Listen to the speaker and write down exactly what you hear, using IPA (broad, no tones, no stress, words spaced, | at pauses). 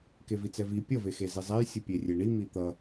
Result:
kevit͡sɛvi pʲʌ vexezizˤɛj sʲɯpʲerʲeɳi mit̪ʌ